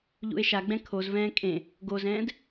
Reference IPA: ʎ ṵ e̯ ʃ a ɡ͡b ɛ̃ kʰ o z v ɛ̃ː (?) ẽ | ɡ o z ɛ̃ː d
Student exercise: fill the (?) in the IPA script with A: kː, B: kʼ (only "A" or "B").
B